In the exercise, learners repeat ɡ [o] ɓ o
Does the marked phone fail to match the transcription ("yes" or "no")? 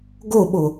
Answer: no